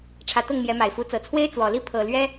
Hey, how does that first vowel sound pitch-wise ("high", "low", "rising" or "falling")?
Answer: rising